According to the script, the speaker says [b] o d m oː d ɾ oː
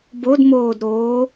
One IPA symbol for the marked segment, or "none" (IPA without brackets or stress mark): b